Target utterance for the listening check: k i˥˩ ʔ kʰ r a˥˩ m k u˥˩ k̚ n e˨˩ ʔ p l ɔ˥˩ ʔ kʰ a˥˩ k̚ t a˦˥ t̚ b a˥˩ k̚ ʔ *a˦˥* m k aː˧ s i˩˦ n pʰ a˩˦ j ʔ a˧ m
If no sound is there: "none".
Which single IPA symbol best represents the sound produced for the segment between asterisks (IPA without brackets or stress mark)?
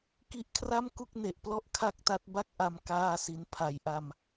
a˧